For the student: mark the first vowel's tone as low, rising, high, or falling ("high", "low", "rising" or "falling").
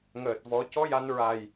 low